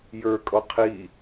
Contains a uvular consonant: yes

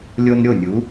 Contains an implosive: no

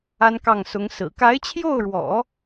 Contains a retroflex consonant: yes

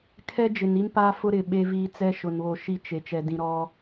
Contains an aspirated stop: yes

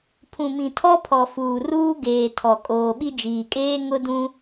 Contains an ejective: yes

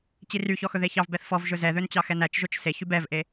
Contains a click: no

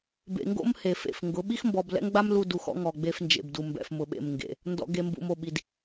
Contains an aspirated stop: no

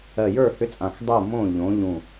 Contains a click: no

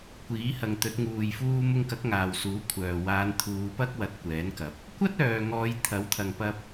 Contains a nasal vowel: no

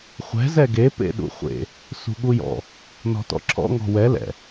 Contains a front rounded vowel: no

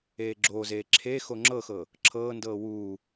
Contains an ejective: no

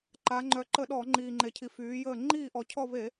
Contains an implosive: yes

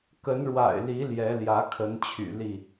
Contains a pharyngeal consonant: no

